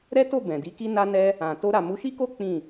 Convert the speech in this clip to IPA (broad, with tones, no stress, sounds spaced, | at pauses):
ɾ ɛ˦ t o˦˨ b ɛ̃˨ d i˨˦ k i˦ n a˦ n ɛ˧ | ã˨ t o˧ ɾ a˨ m u˨˦ ʃ i˦ k o˦ k͡p ĩ˦˨